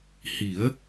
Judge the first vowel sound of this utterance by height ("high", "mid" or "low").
high